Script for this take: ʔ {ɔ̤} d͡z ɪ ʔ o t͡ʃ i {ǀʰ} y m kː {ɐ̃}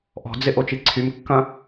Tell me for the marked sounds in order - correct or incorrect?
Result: correct, correct, correct

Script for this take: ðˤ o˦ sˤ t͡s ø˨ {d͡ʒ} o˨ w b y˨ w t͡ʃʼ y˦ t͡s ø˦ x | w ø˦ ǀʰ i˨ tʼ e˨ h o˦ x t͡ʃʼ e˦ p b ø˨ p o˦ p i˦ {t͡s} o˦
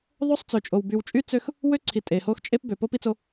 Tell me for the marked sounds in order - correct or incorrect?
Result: incorrect, correct

